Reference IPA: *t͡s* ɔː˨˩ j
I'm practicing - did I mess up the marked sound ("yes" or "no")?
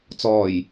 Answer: no